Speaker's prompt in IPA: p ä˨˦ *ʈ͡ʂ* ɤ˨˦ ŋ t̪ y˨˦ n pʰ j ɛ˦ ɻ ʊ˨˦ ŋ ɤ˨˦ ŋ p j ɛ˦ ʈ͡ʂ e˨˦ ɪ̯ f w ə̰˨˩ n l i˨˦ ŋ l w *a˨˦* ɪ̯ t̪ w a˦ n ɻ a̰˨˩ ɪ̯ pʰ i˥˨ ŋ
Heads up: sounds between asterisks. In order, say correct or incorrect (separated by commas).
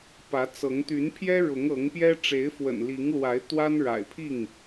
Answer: incorrect, correct